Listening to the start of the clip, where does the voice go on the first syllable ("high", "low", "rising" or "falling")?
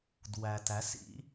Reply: low